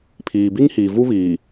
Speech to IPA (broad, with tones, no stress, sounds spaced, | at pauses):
pʰ iː˨ b i˦ ŋ h iː˨ v u˦ β iː˨